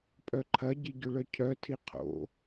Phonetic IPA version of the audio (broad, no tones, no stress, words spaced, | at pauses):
pʼœǃʰɐɟi ɟʏɭœcʰœtʰi qʰo̰